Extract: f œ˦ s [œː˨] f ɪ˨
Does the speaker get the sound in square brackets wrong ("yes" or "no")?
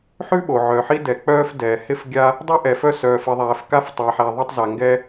no